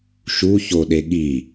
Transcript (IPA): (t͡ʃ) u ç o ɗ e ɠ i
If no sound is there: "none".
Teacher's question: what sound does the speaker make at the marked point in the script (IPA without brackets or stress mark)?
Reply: ʃ